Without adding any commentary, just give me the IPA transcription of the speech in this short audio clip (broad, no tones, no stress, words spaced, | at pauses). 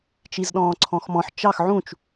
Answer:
t͡ʃizɗɔ̃ːǀʰɔ̃xmɔ̃ħ t͡ʃɑx ʕũt͡ʃ